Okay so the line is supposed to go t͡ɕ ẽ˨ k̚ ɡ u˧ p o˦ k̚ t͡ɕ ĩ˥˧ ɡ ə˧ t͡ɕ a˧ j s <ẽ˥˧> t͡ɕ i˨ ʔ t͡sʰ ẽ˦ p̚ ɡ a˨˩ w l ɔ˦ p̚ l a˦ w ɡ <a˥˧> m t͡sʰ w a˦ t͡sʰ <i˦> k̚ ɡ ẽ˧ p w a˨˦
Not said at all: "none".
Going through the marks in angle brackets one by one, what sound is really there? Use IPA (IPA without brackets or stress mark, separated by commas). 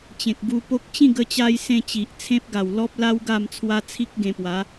ẽ˥˧, a˥˧, i˦